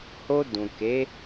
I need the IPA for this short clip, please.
h o˧ d ũ˨ k e˨˦

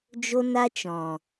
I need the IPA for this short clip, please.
d͡ʒ o˦ n a˦ t͡ʃ ɔ̃˨

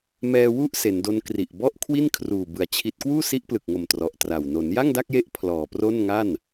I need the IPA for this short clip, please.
m ɛː˧ w u˥˩ ʔ s e˩˦ n d o˦˥ n k r i˨˩ ʔ b ɔ˥˩ ʔ kʰ w i˥˩ n kʰ r uː˨˩ b ɯ˨˩ a̯ t͡ɕʰ i˦˥ t̚ k w uː˥˩ s i˦˥ ʔ p l ɯ˨˩ k̚ ŋ o˨˩ m t r ɔ˨˩ ʔ t r a˨˩ w n o˩˦ n j a˥˩ ŋ d a˥˩ k̚ j e˦˥ ʔ pʰ l ɔː˨˩ p r o˥˩ n ŋ a˥˩ n

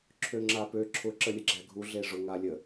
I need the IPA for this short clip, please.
ǁʰ ø ŋ͡ǁ a p ø ǁʰ ʊ ǁ ə lʲ ə ɡ͡ǁ æ ɡʱ u ɮ e ʐ ʊ ŋ a lʲ ə

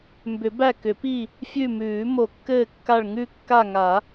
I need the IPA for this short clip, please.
m b ʏ˨˩˦ b æ˦˨ k ʏ˨˩˦ p i˦˨ | fʲ ʉ˦˨ m ʉː˨˩˦ m o˨˩˦ kː ɘː˦˨ kː a˦˨ ɭ ŋ ʉ˦˨ kː a˦˨ ŋ a˨˩˦

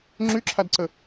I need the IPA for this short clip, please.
ŋ͡ǁ y ǁʰ a d ǀ ə

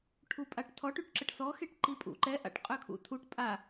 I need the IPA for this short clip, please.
ʈʰ u pʼ a ʈ tʰ ɔ ʈ y ʈ ǁ ə ʈ s ɔ x e ʈ ǃ i pʼ ṵ ǃ ɛ ʔ a̰ ʈ qʼ ø kʰ ṵ tʰ u ʈ pʼ a

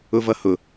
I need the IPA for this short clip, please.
ʊ v ʌ h ʊ

